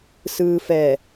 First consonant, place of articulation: alveolar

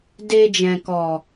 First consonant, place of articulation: alveolar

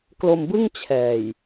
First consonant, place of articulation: velar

